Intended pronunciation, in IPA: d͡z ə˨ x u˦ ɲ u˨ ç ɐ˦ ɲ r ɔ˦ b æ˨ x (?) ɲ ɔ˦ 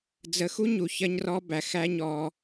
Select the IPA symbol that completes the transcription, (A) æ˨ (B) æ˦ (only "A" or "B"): B